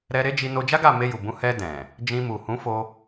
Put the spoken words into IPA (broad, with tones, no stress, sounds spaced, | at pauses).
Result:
ɾ ɛ˧ ɾ e˦ d͡ʒ i˧ n o˧ d͡ʒ a˦ ɡ a˦˨ m e˧ j u˨ b ũ˨˦ h ɛ˧ d ɛ̃˨ | d͡ʒ ĩ˧ m u˨ h ũ˨˦ f o˧